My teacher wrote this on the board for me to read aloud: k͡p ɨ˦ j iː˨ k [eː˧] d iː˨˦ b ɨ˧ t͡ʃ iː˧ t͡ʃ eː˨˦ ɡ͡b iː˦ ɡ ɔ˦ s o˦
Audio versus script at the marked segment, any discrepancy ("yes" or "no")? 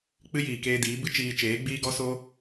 no